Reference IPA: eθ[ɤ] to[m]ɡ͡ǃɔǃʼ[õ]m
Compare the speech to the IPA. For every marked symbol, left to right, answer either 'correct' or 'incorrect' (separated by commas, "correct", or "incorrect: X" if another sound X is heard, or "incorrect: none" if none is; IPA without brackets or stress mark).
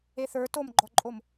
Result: incorrect: ə˞, correct, incorrect: o